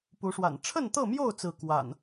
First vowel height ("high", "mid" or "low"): high